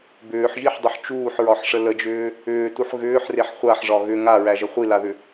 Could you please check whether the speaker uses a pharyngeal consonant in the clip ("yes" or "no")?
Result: yes